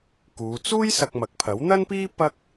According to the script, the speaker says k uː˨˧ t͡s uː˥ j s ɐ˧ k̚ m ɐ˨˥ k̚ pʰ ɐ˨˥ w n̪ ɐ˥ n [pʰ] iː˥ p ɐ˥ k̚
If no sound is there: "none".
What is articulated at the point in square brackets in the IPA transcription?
p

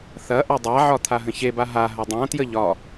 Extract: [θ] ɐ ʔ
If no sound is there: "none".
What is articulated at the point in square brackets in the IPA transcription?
θ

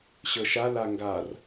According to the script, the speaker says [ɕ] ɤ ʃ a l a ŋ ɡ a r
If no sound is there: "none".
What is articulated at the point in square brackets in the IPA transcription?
ɕ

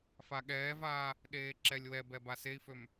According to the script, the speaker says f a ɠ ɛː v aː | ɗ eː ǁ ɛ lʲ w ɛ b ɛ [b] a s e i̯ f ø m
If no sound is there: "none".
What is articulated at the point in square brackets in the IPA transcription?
b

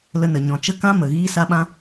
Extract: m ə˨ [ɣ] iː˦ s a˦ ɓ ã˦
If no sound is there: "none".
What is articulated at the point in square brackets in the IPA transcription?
ɣ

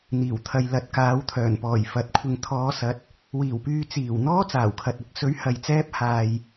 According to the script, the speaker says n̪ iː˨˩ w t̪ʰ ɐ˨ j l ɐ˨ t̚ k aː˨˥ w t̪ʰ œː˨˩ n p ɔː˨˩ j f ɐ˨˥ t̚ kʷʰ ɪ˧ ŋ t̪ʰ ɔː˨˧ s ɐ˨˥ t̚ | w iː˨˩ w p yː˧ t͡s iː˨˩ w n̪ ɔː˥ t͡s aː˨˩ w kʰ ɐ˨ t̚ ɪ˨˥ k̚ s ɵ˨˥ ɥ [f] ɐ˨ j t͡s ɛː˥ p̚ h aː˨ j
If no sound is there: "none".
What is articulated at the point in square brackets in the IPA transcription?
h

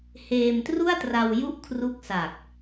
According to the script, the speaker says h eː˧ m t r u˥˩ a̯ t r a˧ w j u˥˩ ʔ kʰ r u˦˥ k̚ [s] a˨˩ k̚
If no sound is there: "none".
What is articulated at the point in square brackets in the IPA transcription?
s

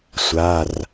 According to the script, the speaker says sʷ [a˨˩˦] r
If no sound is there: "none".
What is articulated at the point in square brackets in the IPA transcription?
a˩˧˩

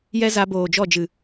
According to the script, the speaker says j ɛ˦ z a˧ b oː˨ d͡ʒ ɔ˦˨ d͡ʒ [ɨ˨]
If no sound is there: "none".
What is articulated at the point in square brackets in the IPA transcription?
ɨ˨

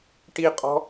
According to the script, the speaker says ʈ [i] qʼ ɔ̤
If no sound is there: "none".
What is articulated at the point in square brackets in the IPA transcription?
i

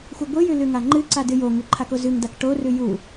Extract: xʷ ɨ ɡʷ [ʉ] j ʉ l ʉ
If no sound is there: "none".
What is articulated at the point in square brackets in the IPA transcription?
ɨ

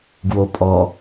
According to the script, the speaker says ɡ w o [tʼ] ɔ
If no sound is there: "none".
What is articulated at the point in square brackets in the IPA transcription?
pʼ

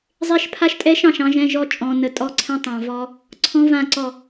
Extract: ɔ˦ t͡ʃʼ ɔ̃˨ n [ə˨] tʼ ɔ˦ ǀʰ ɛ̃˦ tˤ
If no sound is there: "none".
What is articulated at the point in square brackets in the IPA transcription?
ə˨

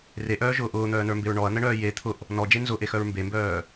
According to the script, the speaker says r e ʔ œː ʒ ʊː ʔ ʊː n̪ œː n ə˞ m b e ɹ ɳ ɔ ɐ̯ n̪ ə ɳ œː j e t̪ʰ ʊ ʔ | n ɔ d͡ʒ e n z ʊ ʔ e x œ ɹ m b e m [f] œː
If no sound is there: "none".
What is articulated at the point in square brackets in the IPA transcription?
b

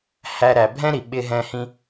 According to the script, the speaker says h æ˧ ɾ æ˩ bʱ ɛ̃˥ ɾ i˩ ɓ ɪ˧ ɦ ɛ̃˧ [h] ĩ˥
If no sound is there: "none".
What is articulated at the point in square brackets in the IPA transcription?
h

